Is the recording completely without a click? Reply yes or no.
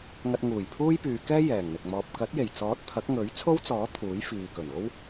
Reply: yes